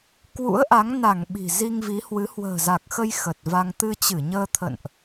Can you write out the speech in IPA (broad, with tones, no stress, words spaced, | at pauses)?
kwṵ˧˥ə̯ʔa˨˦ŋ na˧˩ŋ ɓi̤˨˩ zi˧ŋvi˨˦hwɨ˨˦ hwə̤ː˨˩za˨˩k̚xə˧j xə˨˩t̚va˧ŋ t̪ɨ˧t͡ɕɨ˧˩ɲəː˧t̪ʰə̰˧˨nʔ